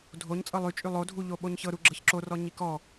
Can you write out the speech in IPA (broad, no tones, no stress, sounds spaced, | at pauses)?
dʱ o ɲ t͡sʼ ɤ lˠ y t͡ʃʼ y lˠ o dʱ u ʎ o ɓ o ɲ ç ɤ ɾ u ɡ͡ǁ ɤ ç ǁ o r ɔ ɲ i k ɔ